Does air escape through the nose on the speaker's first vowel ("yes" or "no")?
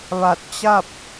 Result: no